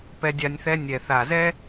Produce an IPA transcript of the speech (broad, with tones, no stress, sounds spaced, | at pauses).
p ɛ˧ dʲ a˧ nʲ θ ɛ˧ nʲ ɛ˨ θ a˨ z ɛ˦